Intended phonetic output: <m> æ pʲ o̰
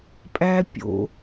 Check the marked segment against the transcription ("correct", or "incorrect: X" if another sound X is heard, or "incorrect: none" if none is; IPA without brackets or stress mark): incorrect: pʼ